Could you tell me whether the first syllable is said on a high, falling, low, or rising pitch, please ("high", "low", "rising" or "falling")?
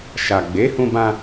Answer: low